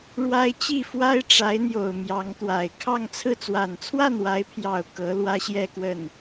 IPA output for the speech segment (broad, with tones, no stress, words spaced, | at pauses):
ɻwa˥ɪ̯ t͡ɕi˥˩fwa˥ɪ̯ ʈ͡ʂa˧˥ɪ̯n̪jo˨˩ʊ̯ mjɑ˧˥ŋt̪wa˨˩ɪ̯ kʰɑ˥˧ŋt͡sʰɹ̩˥˩ t͡swa˨˩nt͡sʰwa˥˩nwa˧˥ɪ̯pʰjɑ˨˩ʊ̯ kɤ˧˥ lwä˥ɕjɛ˥˧kwə˥˩n